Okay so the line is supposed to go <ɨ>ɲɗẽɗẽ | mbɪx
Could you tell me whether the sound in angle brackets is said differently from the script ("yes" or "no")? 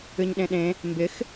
no